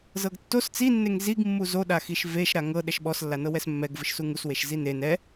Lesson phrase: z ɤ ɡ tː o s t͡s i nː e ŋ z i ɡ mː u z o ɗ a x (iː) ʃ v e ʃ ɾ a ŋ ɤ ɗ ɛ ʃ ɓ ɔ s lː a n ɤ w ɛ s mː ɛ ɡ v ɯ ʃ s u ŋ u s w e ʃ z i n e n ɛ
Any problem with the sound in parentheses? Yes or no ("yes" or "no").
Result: yes